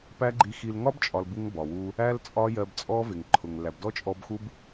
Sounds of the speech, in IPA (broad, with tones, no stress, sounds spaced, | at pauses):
p æ˦ ɡ͡ǃ i˧ x i˧ l ŋ ɒ˦ b t͡ʃʼ ɒ˨ l b u˦ ŋ b ɒ˨ w u˦ | æ˦ l t͡sʼ ɒ˦ j ɜ˧ b t͡sʼ ɔ˦ v ɪ˨ ŋ ǃʰ ʊ˨ ŋ l æ˨ b d ɔ˦ t͡ʃʼ ɔ˧ b x u˦ b